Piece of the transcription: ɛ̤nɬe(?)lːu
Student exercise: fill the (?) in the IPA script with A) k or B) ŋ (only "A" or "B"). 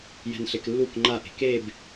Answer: A